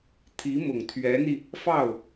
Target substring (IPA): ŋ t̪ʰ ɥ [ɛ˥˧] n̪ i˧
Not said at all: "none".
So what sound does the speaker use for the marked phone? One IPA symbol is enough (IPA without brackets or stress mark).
ɛ˧˥